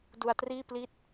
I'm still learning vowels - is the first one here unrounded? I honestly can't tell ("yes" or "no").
no